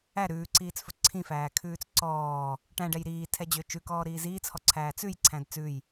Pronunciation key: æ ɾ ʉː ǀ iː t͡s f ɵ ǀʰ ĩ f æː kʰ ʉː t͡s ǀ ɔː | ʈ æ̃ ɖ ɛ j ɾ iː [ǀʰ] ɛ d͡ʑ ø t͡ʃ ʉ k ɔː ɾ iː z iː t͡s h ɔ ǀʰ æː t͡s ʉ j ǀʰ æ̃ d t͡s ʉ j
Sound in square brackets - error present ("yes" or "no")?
yes